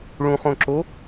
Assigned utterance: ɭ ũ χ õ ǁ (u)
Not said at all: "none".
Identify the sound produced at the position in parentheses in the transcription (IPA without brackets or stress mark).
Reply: o